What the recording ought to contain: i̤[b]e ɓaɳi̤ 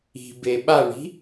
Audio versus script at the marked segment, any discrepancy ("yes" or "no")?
no